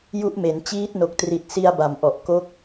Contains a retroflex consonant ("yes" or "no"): no